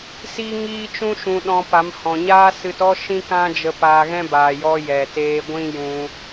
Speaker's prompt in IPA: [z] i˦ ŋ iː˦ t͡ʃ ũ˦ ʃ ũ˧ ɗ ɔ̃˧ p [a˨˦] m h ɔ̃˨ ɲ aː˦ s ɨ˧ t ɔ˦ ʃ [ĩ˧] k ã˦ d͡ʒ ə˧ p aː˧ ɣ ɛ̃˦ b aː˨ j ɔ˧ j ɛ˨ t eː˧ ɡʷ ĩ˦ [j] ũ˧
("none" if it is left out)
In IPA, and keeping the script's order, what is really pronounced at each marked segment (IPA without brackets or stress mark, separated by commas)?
s, a˨˦, ĩ˦, j